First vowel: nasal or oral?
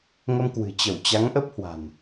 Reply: oral